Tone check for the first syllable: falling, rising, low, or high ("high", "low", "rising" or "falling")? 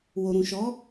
low